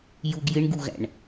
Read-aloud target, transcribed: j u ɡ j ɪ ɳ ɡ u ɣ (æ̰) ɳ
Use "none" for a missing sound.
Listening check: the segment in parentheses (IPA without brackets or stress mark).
æ̰